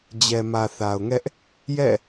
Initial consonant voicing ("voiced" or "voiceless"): voiced